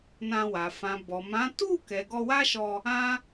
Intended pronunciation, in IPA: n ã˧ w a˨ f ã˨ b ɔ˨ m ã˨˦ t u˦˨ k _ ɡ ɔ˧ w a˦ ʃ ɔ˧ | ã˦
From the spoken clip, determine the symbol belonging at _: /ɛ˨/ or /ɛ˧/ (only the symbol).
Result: ɛ˨